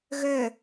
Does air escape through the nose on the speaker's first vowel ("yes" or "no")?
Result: no